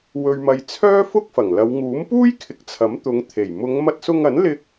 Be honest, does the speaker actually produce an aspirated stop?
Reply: yes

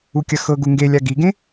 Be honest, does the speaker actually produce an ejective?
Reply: no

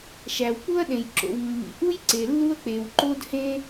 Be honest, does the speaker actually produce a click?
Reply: yes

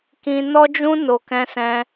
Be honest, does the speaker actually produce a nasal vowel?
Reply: yes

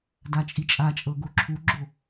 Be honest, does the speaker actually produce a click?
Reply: yes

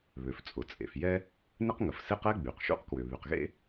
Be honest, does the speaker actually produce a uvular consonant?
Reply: yes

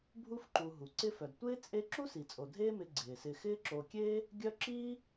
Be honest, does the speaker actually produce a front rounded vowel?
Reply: yes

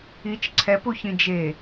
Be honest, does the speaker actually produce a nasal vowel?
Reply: yes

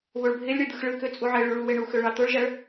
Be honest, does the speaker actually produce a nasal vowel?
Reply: no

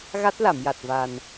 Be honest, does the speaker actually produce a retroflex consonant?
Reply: no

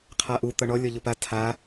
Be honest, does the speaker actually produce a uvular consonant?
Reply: yes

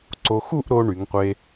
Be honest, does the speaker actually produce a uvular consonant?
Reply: yes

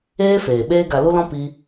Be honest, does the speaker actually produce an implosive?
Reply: yes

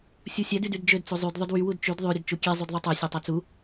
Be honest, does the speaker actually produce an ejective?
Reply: no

